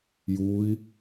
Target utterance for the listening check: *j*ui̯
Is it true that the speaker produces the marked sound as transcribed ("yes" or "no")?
yes